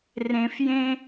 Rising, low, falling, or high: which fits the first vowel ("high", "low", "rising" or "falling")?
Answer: low